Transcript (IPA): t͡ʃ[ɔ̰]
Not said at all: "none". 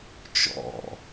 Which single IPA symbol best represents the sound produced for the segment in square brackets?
ɔ̰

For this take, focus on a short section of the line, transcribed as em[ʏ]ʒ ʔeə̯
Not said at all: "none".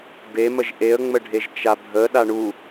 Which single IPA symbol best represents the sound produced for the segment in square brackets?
ə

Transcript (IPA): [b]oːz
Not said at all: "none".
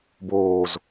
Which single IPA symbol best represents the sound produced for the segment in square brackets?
b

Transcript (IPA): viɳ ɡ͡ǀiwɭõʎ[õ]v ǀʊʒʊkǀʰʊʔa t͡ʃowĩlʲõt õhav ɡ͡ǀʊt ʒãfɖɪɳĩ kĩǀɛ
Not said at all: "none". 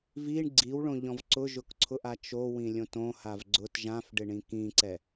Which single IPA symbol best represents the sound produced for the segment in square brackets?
ɔ̃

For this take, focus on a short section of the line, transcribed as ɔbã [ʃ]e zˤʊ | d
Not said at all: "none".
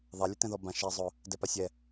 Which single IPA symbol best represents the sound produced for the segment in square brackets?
ʃ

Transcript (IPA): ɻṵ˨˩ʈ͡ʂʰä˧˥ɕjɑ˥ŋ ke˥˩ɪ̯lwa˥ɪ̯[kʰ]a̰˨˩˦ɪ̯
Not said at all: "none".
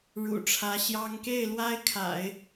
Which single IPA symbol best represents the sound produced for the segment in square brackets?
kʰ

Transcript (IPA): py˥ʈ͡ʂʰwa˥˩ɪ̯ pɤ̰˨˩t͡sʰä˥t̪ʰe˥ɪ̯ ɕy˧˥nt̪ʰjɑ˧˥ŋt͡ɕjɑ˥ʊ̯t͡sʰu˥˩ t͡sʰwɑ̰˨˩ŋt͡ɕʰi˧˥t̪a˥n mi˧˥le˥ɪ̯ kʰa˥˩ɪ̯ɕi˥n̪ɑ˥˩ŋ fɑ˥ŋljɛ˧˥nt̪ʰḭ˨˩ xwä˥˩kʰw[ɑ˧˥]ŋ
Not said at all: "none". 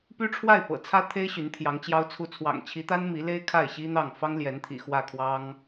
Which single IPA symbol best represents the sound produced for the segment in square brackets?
ɑ˥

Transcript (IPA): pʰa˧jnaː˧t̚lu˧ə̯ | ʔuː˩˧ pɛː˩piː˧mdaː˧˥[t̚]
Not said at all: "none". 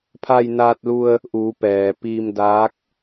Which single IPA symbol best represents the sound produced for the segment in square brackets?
k̚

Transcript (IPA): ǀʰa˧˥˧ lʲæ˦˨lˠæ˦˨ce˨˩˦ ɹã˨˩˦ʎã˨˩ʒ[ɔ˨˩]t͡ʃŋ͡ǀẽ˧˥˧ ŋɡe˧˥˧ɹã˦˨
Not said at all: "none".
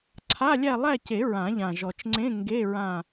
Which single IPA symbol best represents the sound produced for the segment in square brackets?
ɔ˨˩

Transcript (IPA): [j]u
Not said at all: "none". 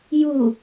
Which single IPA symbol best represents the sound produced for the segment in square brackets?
j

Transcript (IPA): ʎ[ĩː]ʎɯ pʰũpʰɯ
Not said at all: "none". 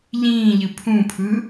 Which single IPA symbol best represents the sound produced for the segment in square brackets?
ĩː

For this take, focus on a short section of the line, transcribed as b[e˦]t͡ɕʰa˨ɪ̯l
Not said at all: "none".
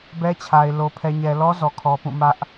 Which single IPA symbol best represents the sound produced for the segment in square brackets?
ɛ˦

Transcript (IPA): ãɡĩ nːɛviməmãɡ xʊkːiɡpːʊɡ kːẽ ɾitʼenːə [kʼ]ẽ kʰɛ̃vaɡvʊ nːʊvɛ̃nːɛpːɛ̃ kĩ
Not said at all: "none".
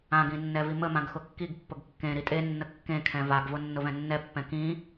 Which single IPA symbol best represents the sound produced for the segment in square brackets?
kː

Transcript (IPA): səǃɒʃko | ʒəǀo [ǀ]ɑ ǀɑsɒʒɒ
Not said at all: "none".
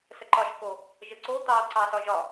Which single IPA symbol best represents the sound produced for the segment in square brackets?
t̪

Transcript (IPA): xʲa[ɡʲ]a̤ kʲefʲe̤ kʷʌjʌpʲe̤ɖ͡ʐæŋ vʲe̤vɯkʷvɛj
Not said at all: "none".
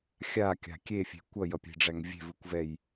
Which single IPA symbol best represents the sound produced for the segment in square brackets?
kʲ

